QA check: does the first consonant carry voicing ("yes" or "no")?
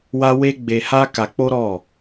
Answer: yes